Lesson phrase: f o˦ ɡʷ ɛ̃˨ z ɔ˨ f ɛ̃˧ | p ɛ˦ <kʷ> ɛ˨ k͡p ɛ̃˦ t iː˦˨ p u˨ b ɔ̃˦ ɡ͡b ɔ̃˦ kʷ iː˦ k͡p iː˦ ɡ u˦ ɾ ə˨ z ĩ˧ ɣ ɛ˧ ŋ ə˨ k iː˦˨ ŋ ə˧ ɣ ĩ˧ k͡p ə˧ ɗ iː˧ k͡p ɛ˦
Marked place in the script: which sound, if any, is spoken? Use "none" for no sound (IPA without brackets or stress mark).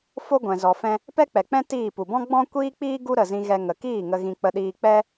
k͡p